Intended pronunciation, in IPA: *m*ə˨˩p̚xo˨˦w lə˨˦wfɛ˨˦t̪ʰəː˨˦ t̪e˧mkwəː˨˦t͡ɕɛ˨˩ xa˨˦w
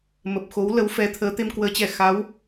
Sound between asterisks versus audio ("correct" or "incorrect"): correct